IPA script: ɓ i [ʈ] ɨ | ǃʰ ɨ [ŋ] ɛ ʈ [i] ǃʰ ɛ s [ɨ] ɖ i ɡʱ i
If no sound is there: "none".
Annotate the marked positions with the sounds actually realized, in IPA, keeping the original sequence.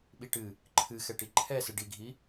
ʈ, x, i, ɨ

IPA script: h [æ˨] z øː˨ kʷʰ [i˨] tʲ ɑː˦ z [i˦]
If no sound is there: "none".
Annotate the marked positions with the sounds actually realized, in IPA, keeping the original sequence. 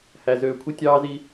æ˨, i˦, i˦

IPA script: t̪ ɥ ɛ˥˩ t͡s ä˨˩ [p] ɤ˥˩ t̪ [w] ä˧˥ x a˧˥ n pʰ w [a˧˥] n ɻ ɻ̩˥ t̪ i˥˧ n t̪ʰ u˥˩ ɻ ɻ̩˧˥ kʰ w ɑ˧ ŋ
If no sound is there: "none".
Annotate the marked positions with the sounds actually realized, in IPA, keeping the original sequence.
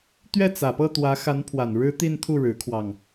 p, w, a˨˩

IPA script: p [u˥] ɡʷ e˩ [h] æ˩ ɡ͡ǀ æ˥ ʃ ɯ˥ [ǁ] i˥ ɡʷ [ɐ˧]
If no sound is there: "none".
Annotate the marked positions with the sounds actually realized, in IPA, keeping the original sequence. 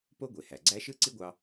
o˥, h, ǀ, ɑ˧

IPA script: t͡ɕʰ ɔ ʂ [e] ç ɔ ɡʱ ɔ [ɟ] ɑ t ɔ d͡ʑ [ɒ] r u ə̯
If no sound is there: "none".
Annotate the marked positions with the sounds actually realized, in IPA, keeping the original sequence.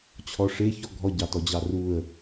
e, ɟ, ɑ

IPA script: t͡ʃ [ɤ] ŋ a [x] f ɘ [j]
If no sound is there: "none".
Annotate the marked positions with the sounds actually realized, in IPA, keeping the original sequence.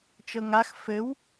ɤ, x, w

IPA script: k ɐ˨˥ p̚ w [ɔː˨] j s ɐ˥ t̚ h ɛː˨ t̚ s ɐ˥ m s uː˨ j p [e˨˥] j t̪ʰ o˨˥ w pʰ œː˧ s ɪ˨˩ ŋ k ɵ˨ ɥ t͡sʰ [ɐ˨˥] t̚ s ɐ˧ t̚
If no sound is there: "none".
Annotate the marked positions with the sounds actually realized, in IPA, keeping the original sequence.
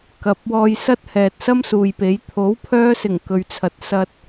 ɔː˧, e˨˥, ɐ˨˥

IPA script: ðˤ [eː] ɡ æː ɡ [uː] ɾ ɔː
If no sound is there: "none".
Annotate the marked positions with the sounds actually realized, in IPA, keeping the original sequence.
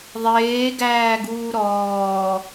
eː, uː

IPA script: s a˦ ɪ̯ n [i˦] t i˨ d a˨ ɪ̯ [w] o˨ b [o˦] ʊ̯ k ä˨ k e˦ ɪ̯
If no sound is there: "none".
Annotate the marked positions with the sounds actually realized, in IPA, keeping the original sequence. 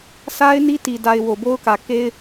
i˦, w, o˦

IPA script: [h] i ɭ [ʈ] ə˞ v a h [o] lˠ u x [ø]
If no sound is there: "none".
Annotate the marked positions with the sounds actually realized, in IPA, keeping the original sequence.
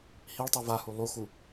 h, tˤ, u, u

